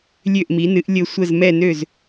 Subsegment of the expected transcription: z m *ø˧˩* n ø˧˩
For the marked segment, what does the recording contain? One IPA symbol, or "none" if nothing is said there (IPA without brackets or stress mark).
ɛ˧˩